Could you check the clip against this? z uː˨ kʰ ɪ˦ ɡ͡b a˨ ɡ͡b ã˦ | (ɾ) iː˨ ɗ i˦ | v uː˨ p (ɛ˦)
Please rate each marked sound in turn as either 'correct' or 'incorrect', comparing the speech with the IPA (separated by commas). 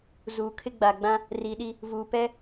incorrect, correct